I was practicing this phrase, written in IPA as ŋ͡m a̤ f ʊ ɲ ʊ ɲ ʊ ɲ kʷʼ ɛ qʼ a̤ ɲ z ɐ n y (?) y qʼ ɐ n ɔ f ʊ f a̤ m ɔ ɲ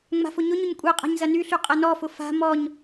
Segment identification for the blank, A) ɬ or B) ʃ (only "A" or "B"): A